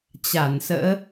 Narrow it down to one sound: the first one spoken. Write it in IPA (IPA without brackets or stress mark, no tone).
t͡ɕ